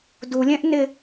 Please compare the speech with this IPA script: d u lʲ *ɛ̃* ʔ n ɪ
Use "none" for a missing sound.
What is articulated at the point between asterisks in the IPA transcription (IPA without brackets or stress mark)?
ɛ̃